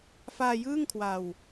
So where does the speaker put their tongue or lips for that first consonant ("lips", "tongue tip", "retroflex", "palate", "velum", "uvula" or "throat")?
lips